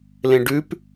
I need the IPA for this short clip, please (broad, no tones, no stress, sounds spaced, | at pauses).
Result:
l ẽ ɖ ʉ p